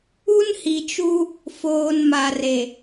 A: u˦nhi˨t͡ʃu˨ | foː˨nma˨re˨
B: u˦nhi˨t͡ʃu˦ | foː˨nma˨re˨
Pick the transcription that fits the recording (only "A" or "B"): B